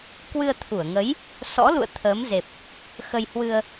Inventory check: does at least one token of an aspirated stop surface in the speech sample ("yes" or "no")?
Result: yes